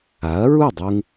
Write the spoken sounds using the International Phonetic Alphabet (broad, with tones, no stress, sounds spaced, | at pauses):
a˩˥ ɐ̯ ɹ u˥˩ dˤ u˧ ŋ